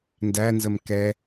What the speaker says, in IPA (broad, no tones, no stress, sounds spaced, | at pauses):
n d æ n z ə m k ɛ